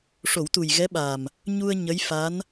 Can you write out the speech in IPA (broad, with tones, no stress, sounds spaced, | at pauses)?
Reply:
ʂ o˨˩˦ w t̪ u˨˩ j ɣ ɛ˧˥ ɓ aː˨˩ m | ɲ u˧ ə̯ ɲ ə˧˥ j f a˧˥ n